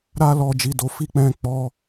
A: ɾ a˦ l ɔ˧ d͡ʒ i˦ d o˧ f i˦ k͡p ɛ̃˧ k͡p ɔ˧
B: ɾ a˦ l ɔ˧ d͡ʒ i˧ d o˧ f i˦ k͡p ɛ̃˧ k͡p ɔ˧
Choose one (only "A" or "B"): B